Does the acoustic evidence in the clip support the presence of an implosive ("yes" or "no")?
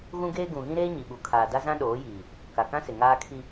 yes